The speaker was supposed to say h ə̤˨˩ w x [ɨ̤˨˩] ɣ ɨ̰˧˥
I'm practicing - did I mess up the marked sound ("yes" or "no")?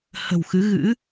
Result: yes